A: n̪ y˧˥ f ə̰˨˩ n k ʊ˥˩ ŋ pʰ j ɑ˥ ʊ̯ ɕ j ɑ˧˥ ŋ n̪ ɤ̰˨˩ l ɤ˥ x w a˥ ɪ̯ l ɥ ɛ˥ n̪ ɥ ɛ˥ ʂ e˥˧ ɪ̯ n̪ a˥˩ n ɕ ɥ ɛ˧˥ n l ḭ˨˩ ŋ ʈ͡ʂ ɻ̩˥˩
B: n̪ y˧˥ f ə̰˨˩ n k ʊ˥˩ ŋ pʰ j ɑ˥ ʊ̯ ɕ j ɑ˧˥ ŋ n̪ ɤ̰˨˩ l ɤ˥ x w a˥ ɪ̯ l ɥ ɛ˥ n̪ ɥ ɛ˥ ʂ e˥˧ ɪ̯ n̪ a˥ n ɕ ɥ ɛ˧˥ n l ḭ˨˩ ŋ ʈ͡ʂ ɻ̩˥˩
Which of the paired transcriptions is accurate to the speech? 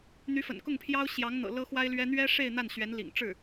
A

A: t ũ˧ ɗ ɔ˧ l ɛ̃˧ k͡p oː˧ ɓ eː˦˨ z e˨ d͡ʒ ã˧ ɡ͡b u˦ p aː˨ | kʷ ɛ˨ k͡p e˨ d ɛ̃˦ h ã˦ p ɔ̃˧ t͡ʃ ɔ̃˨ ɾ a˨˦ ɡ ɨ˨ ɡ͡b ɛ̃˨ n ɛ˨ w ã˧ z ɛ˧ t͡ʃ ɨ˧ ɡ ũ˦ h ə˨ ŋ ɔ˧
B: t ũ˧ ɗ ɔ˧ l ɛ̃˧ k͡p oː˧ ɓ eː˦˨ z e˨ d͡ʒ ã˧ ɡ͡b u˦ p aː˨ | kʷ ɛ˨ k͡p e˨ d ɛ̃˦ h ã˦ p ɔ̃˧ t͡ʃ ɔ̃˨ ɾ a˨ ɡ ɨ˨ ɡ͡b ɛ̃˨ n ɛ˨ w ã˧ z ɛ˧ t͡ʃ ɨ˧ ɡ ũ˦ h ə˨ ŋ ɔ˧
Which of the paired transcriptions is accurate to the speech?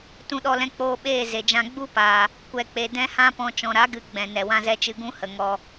A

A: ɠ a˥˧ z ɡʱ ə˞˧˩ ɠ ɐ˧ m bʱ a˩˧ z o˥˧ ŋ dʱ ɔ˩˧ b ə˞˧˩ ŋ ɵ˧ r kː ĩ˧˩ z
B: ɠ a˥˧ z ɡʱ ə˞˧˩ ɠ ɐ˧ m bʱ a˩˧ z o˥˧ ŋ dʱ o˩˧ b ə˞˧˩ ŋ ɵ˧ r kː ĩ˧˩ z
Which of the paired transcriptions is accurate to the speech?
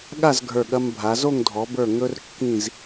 A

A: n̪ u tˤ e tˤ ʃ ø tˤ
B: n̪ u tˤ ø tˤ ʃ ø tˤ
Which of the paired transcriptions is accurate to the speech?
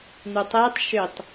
A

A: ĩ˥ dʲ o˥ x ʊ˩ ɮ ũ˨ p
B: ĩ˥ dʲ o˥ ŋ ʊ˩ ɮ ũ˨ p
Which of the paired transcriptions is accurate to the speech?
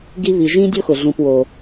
A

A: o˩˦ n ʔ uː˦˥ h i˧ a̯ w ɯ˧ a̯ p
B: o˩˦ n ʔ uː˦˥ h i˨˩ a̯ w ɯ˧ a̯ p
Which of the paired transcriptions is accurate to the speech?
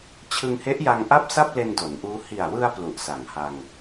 B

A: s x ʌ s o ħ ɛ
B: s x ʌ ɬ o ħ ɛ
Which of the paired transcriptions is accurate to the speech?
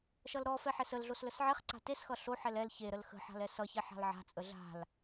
B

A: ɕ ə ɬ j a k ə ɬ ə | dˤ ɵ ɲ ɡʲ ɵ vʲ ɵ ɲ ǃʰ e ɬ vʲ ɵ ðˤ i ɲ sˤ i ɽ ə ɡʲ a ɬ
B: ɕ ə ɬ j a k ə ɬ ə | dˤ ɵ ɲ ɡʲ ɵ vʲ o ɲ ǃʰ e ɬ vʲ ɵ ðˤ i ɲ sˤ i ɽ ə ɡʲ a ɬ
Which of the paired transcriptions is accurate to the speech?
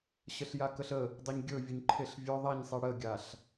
A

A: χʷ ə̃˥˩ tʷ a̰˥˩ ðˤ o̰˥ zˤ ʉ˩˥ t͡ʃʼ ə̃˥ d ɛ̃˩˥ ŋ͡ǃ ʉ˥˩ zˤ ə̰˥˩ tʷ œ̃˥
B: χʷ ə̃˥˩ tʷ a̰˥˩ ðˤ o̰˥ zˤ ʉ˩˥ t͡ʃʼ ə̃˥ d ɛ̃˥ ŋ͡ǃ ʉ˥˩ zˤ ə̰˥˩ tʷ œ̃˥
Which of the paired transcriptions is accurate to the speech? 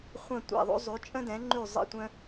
A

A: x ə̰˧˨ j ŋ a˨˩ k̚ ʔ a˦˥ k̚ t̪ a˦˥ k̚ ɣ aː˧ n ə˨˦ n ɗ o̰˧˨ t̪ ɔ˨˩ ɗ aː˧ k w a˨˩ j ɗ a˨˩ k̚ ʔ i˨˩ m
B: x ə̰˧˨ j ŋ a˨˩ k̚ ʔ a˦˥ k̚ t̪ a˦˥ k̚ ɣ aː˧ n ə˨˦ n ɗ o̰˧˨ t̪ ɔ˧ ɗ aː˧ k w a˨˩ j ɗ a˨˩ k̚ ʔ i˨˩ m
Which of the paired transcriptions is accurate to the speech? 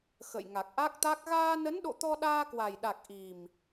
B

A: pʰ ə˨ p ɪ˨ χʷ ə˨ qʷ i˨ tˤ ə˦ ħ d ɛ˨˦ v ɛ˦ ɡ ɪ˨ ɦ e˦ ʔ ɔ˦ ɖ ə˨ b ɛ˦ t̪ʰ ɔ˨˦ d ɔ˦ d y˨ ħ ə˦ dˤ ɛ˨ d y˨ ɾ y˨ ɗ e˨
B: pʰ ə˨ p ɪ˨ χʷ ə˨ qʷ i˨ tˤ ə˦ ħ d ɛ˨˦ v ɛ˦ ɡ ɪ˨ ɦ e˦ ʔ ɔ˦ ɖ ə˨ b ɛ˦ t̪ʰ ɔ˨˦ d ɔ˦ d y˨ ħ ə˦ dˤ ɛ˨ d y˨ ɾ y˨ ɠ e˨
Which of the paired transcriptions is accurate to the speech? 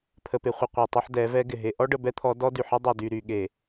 B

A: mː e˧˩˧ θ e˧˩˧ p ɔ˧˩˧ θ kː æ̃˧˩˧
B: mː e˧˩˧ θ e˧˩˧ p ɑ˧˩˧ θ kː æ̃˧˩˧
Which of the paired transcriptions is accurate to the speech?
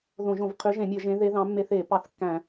B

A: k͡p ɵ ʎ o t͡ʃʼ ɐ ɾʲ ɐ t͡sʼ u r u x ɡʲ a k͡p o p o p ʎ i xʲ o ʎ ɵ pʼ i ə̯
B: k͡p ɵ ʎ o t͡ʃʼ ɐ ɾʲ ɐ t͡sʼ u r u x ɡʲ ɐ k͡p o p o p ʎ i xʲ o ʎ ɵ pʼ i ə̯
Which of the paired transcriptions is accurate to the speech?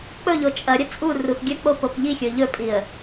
B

